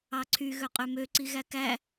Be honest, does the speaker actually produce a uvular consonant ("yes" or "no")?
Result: yes